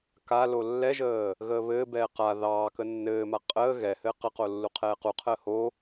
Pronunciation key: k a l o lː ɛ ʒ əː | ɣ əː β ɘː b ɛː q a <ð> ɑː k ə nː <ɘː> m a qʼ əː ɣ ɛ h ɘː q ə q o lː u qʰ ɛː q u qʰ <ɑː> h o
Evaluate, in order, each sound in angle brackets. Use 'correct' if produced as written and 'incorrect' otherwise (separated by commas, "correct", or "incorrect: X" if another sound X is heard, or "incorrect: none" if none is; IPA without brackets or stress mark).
correct, correct, incorrect: əː